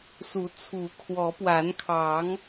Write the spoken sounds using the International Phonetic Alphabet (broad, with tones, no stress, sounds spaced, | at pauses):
s u˨˦ t͡sʰ u˨˦ kʰ w ɔ˨˦ p w a˨˦ n kʰ ɑ˨˦ ŋ